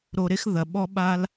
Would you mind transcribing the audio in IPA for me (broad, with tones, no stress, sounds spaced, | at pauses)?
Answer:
ɾ o˨ ɾ e˦ x ð ɐ˩ ɓ ɔ˦ ɓ a˦ l